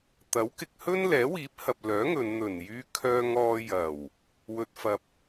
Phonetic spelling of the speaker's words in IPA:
t̪ ɐ˨˥ w k ɪ˨ k̚ h ɵ˥ n l ɛː˨˥ w iː˨˥ p̚ h ɐ˨ p̚ l œː˨˥ ŋ ɵ˨˧ n n̪ ɵ˨˩ n j yː˧ kʰ œː˧ ŋ ɔː˧ j ɐ˨˩ w | w ɵ˧ t̚ f ɐ˧ p̚

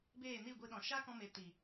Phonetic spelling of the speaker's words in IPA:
b eː˦˨ n i˦˨ ɡʷ i˧ ɗ ɔ̃˨ ʃ a˦ k ɔ̃˧ m e˨ t i˨

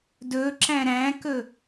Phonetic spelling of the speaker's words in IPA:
d ɵ ǁ æ̃ ɾ æ̃ k ɵ

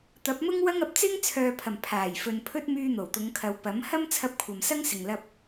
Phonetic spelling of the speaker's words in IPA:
t̪ ɐ˨˥ p̚ m ʊ˥ ŋ w ɐ˥ ŋ ɐ˨ p̚ t͡s ɪ˥ ŋ t͡sʰ œː˨ pʰ ɐ˨˩ m pʰ aː˨˩ j f ɵ˨ n pʰ ɵ˥ t̚ m yː˧ n̪ o˨˩ w t̪ ʊ˨˧ ŋ kʰ ɐ˨˧ w p ɐ˨˥ m h ɐ˥ m t͡sʰ ɐ˧ p̚ kʷʰ ɐ˨ m s ɐ˥ ŋ s ɪ˨ ŋ l ɐ˧ p̚

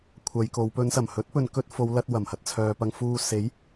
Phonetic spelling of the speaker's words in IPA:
kʷʰ ɐ˨˧ j k o˨˧ w p ɵ˨˧ n s ɐ˨˩ m h ɵ˨˥ t̚ p ɵ˨ n k ɵ˧ t̚ f o˨˧ w l ɐ˧ t̚ w ɐ˨˩ m h ɐ˧ t̚ t͡sʰ œː˨ p ɐ˧ ŋ f uː˧ s e˨˥ j

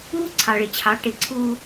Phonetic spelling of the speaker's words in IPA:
uː˦ ǀʰ ɑ˨ ɭ ɪ˨ t͡ɕʰ ɑ˨˦ ʈ ɪ˨˦ ǀʰ uː˦

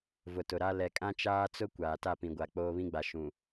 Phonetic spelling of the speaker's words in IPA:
v ʊ˨ t ʊ˨ ɾ a˦ l ɛ˨ kʼ ã˦ t͡ʃ aː˦ t͡s ʊ˦ kʷ aː˨ t a˦˨ p ĩ˨ ɡʷ a˨ k͡p oː˦ β ĩ˦ ɡ͡b a˨ ʃ ũ˨

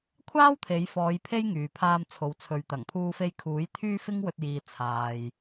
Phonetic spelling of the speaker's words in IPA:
kʷʰ aː˥ w t̪ʰ e˨˧ j f ɔː˨˧ j pʰ e˥ j ŋ yː˨ pʰ aː˧ m t͡sʰ o˨ w t͡sʰ ɵ˨ ɥ t̪ ɐ˨˩ ŋ pʰ uː˧ f e˧ j kʰ uː˨˥ j t̪ʰ yː˥ f ɪ˥ ŋ w ɵ˧ t̚ j iː˨ t͡sʰ aː˨ j

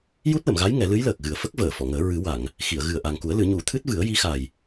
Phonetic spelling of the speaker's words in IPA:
j u˦˥ t̚ l ə˨˩˨ m ɣ a˧˥ j ŋ ɛ˨˩˦ l ɨ˧˥ j l əː˨˩ k̚ ɣ ɨ˨˩ ə̯ f ə˦˥ k̚ v əː˨˩˨ f ɔ˨˩˨ ŋ əː˨˩˦ ɹ ɨ˨˩˦ w a˨˩˨ ŋ | x i˨˩˨ ə̯ ɣ ɨ˨˩ ə̯ ʔ a˨˩ ŋ k u˨˩˦ ə̯ l ɨ˨˩˦ ɲ u˨˩˦ t̪ʰ ɨ˦˥ t̚ v ɨ˨˩˦ ə̯ j i˧˥ x a˨˩ j

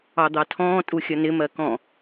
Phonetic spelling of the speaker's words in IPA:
ɑ d̪ ɑ tʰ ɔ̃ː tʼ u xʲ ʌ n ɪ m ɜ k ɔ̃

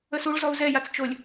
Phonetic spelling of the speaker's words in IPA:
ə s u ɭ z ɔ u̯ z ɛ j a t͡s t͡ʃ o lʲ

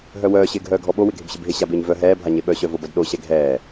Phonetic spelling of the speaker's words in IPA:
ɦ œ w œː ɕ ɪː ɡʱ œː ɡʱ ɔ ɓ o w ɪ ɡʱ ɪ b ɕ ɪ b ɦ ɪ ɕ a b ɪː ɲ v œ ɦ ɛː bʱ a ɲ e ɓ œ ɕ œ v o b ɐ d ɗ o ɕ ɛ ɡʱ ɛː

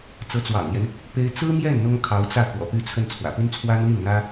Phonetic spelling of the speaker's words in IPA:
t͡s ɤ˧˥ t͡s w ɑ̰˨˩ ŋ l j ɛ˦ n | p e˥ ɪ̯ t͡s ɹ̩˥ m j ɛ˥˩ n n̪ ʊ˥ ŋ kʰ ɑ˧˥ ʊ̯ t͡s ä˥˩ k w ɔ̰˨˩ p y˥˧ t͡sʰ ə˥˩ n t͡sʰ w ä̰˨˩ p y˥ n t͡sʰ w a˥ n l i˥˩ n n̪ ä˥

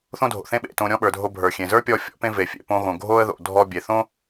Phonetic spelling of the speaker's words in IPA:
θ õ˥ dʱ o̰˩ θ ẽ˥ ɓ ḛ˩ t õ˧ ɾʲ ɔ̃˥ ɓ ə˞˩ dʱ o˧ bʱ ə˞˩ xʲ ẽ˩ z ə˞˥ pʲ ɔ˧ fʲ ɔ̰˥ p ẽ˥ v e˩ fʲ ḛ˩ p õ˧ ɣ õ˩ ɡʱ o˥ ə̯ ð o̰˩ dʱ ɔ˧ bʲ e˩ θ õ˥

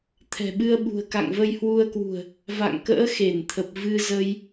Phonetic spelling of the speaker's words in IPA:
t̪ʰ ɛ̤˨˩ ɓ ɨ˧ ə̯ ɓ ṳ˨˩ ə̯ k a̰˧˨ ŋ v ə˧ j h w u˧ ə̯ k w ṳ˨˩ ə̯ | v a̰˧˨ ŋ k ə̰ː˧˥ x e˧˩ n t̪ʰ ə˨˩ p̚ v ɨ˧ z ə˧ j

